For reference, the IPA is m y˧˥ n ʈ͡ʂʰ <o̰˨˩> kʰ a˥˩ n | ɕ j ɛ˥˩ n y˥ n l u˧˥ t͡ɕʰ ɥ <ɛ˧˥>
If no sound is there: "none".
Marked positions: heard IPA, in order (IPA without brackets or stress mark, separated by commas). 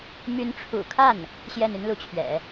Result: ṵ˨˩, ɛ̰˨˩˦